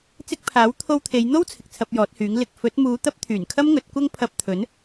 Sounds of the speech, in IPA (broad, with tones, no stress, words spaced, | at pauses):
t͡sɪ˧k̚pʰaː˨˥w t̪ʰo˥w t̪ʰe˨˧jn̪o˥w t͡sʰɪ˨k̚t͡sʰɐ˧p̚jɔː˨˥t̚hyː˨˥ŋ lɪ˨k̚ fɵ˨˥t̚muː˨˧ t̪ɐ˥p̚t̪ʰyː˨˩nkʰɐ˥mŋɵ˨˥t̚ kʷɐ˥ŋpʰɐ˧p̚t̪ʰɵ˨˥n